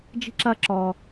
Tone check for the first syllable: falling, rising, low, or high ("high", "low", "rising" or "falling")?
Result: high